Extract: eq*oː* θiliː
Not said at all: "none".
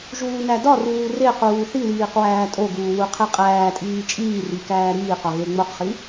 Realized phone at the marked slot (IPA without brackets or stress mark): uː